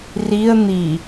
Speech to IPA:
r i ə̯ n̪ i

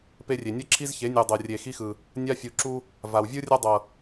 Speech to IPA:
p e˦ rʲ e˨ nʲ ɤ˦ ǁʰ i˦ z ç e˨˦ nʲ u˨ dˤ ɤ˨ rʲ e˨ x i˦ x ɯ˨ | nʲ a˦ fʲ u˨ ǁ u˦ | v a˨ w vʲ ɯ˦ rʲ a˦ dˤ ɤ˨

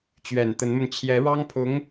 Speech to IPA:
t͡ɕ ɥ ɛ˨˩ n t̪ ə˧˥ n m ə˧ n t͡ɕʰ j ɛ˧˥ ɻ ɑ˥ ŋ pʰ ʊ˧˥ ŋ

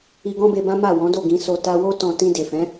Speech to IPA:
i˧ ɡ ɔ̃˦ b e˧ b ã˦ m a˦˨ w ɔ̃˨˦ d o˦˨ ɡ ĩ˧ s o˧ t a˧ w o˦ t ɔ̃˧ t ĩ˧ d e˨ f ɛ̃˨˦

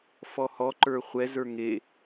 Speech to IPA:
f ɔ h ɔ ǃ ə˞ χʷ ɛ z ə˞ ŋ e

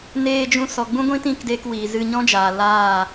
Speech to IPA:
n eː˧ d͡ʒ ũ˧ s ɔ˨ ɡ͡b ũ˦ ɡʷ ĩ˦ t ĩ˦˨ k d eː˧ k w iː˨ z ɨ˧ ɲ ɔ̃˦ d͡ʒ aː˨ l aː˦˨

